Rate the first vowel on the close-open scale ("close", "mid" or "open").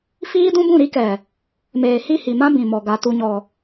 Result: close